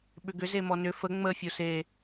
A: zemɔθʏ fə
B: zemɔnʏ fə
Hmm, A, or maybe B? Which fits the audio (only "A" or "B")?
B